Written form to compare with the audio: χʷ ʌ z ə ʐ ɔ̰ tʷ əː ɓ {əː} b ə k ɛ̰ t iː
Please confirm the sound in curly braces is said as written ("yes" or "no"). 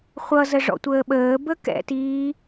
yes